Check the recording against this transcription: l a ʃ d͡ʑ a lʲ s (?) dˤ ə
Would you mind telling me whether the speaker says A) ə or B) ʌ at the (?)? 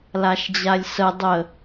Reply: A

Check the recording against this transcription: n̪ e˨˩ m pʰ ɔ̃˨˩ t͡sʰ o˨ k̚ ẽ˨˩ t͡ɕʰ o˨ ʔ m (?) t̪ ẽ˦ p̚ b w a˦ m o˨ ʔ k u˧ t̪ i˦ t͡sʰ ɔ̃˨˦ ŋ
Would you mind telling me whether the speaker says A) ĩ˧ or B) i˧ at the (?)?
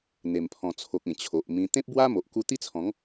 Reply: A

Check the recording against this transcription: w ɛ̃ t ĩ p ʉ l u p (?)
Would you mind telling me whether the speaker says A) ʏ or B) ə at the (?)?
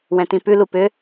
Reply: A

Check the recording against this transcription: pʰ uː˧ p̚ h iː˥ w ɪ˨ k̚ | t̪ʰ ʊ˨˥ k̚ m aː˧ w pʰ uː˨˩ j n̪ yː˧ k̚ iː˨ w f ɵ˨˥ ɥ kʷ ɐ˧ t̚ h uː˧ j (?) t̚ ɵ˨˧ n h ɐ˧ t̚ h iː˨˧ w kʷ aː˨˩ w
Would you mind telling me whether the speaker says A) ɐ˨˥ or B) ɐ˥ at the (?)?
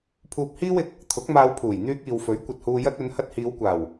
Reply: B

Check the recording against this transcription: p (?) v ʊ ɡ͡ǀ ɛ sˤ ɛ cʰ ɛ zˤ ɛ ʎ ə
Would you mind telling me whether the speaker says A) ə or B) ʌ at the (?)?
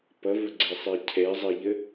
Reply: B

